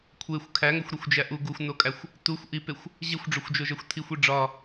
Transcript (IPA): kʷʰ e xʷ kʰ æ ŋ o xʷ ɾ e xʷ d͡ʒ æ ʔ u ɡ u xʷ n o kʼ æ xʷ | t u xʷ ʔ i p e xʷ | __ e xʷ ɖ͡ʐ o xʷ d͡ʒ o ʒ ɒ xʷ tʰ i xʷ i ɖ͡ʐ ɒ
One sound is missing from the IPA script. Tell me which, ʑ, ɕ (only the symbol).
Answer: ʑ